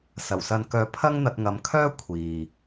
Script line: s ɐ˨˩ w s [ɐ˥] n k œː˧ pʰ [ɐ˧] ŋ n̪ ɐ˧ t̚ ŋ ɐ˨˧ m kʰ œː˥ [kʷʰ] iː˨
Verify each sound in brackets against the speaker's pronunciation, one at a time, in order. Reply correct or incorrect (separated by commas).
incorrect, incorrect, correct